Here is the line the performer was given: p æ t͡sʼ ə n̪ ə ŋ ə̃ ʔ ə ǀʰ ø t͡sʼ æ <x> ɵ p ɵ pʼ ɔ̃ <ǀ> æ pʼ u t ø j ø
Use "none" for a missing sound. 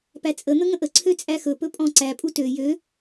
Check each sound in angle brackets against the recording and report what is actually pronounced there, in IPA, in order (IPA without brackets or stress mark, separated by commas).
x, ǀ